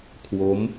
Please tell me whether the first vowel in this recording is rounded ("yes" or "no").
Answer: yes